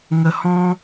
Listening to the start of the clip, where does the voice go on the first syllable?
low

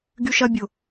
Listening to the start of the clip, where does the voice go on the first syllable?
high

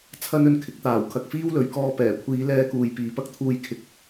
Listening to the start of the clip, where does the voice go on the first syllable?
high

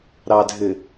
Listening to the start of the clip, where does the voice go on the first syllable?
low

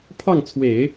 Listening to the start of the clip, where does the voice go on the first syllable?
falling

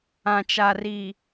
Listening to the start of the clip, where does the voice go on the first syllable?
low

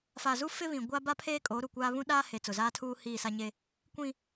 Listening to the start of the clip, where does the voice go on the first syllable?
low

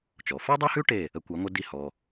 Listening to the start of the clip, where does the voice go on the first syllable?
low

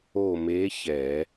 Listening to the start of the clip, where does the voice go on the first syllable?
falling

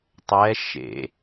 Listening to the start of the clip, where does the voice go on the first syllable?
rising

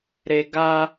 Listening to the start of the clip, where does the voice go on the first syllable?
high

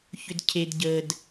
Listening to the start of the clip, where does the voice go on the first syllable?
low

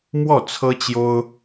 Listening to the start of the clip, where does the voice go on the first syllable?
falling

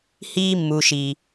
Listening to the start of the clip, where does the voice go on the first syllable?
high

